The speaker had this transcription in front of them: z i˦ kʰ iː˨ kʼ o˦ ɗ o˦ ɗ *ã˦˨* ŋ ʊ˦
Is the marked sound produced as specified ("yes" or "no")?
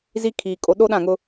yes